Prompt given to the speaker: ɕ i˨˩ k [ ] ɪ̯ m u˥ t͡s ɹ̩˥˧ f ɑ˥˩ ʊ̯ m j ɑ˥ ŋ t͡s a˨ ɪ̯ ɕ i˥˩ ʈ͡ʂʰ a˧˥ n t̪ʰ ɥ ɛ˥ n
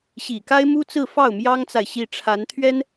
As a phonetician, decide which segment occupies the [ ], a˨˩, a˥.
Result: a˥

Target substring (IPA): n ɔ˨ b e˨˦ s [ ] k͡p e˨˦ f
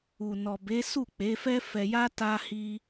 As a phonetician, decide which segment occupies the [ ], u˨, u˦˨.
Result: u˦˨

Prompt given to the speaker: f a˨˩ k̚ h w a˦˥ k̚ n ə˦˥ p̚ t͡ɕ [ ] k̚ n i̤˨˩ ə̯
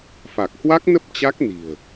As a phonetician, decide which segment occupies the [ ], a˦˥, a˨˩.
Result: a˦˥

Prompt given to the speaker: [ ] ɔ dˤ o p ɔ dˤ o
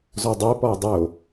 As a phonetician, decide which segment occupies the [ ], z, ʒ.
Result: z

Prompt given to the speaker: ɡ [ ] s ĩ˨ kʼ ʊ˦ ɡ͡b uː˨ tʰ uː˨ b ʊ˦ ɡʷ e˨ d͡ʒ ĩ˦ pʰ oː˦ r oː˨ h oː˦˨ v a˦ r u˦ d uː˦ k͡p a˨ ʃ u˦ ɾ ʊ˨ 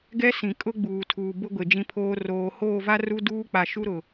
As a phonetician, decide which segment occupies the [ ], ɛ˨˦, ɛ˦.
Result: ɛ˦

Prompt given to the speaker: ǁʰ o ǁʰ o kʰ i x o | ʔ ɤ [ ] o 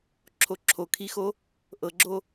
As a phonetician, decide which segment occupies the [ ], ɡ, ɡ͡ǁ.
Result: ɡ͡ǁ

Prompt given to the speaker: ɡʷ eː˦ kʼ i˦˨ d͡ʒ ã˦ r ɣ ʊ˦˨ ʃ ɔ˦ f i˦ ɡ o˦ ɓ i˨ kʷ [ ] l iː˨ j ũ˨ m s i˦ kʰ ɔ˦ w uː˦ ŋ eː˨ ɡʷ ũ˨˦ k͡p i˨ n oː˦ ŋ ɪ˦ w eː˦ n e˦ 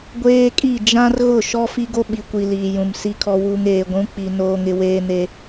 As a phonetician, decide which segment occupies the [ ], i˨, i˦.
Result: i˨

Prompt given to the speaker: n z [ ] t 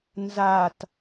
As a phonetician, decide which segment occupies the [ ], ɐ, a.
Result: a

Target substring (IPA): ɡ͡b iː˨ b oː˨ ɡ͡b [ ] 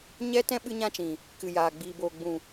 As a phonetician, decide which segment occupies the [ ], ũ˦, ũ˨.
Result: ũ˨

